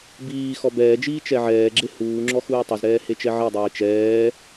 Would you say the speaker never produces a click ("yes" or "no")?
no